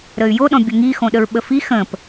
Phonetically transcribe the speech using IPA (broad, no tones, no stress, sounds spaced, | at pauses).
ɾ ə y̯ j o ɗ ɔ̃ bʲ ə ŋ i x õ ɗ ə ɹ ɓ ə f i x ə̃ p